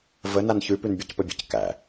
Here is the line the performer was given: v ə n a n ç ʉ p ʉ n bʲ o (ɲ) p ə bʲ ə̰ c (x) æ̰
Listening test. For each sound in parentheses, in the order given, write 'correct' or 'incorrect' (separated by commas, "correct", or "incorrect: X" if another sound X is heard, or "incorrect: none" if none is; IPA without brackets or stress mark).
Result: incorrect: c, incorrect: k